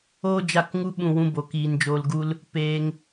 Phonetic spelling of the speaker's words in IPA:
oː˦ d͡ʒ a˦˨ k ŋ u˦ ɓ ũ˦˨ w ũ˦ b o˨˦ k iː˧ n d͡ʒ oː˧ l ɡ u˦ l | p eː˧ ŋ

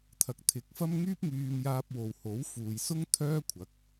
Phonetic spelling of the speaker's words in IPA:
t̪ʰ ɐ˨ k̚ t̪ʰ ɪ˨˥ k̚ f ɐ˥ m ŋ yː˥ p̚ ŋ yː˧ m j aː˧ p̚ w o˨ w h o˨˥ w f uː˨ j s ʊ˥ ŋ t̪ʰ œː˥ kʷʰ ɐ˨˥ k̚

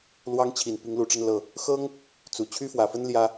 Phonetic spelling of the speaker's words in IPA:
l w ɑ˥ ŋ t͡ɕʰ i˨˩ n p i˧˥ ŋ l u˨˩ ʈ͡ʂ ə˥˧ n l ɤ˥˩ | x ɤ˥ ŋ | t͡s u˨˩ t͡ɕʰ y˥ f w ä˨˩ f ə˥ n l j ä˥

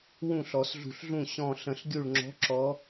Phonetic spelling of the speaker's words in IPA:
w ũ˥˩ ɬ ɔ˨˩˦ s ɮ ṳ˧˩ ɬ ɮ ũ˥˩ ɕ ɔ̃˧˩ ɬ ə̃˨˩˦ ɬ ɡʲ u˧˩ ɭ ŋ͡ǁ ɔ̤˨˦ ǁ ɔ˨˦

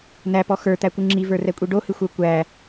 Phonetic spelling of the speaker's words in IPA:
n æ p ɔ x ə˞ t̪ æ kʷ ɨ ŋ͡ǁ i v ə˞ r ɛ kʷʼ i ɖ o h ɨ xʷ ə˞ kʷ æ

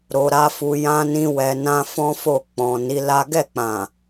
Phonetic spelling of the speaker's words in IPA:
ɾ o˧ ɾ a˦ f u˧ j ã˦ n ĩ˦ w ɛ˧ n ã˦ f ɔ̃˦ f o˦˨ k͡p ɔ̃˨ n i˨˦ l a˦ ɡ ɛ˦˨ k͡p ã˨

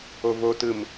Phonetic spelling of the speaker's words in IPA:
o v o t ɯ m

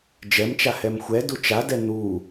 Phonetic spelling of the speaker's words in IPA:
d͡ʒ ɛ m t͡ʃ a h ɛ m xʷ ɛ d u t͡ʃ a d ɛ n̪ u

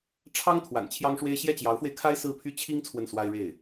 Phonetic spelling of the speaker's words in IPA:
ʈ͡ʂʰ ɑ˥ ŋ t̪ʰ w a̰˨˩ n t͡ɕʰ j ɑ˥ ŋ ʂ w e˥ ɪ̯ ɕ j ɛ˥˩ t͡ɕ j ɑ˧˥ ʊ̯ f w e˧ ɪ̯ kʰ a˥ ɪ̯ s ɹ̩˥ pʰ y˥ t͡ɕʰ i˥ ŋ t͡sʰ w ə˥˩ n s w a˥ ɪ̯ ɻ e˥˩ ɪ̯

